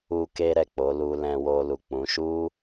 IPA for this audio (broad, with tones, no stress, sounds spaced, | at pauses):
u˧ k e˧ ɾ ɛ˨ k͡p o˨˦ l u˧ l ɛ̃˧ w o˧ l u˨ k͡p ũ˨˦ ʃ u˦